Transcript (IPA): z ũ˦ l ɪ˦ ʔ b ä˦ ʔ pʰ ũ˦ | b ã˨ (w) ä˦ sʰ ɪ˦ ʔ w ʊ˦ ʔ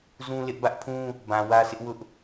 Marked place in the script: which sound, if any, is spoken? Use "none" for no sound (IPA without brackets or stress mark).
w